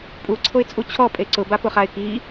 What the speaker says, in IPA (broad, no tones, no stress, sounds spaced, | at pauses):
pʼ u ǀʰ o ɪ̯ t͡sʼ u t͡ɕʰ ɔ pʼ e ǀ ʊ b a p ʊ χ a ɪ̯ k i